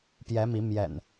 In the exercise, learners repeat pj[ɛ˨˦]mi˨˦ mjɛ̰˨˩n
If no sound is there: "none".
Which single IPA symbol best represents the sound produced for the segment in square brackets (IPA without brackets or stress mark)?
ɛ˨˦